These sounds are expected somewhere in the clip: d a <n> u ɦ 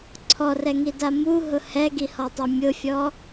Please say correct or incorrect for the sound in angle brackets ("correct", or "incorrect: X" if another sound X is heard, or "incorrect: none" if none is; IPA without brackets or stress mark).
incorrect: m